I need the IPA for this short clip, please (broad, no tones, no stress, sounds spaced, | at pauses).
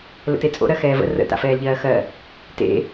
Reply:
l ə̰ t e t͡sʼ o̰ ɾ ɜ x ɛː v ə̰ r ə̰ t a̰ f ɛː l ʎ ɜː x ɜ | t ḛ